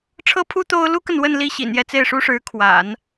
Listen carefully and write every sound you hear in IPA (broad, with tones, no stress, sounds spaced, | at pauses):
ʈ͡ʂʰ ɤ˥ pʰ u˥ t̪ o˥ ʊ̯ l u˥ k ə˨ n w ə˥˧ n l i˥˩ ɕ ḭ˨˩ n j ɛ˥˧ t͡s e˥˩ ɪ̯ ʂ u˥ ʂ ɻ̩˧˥ kʰ w a̰˨˩˦ n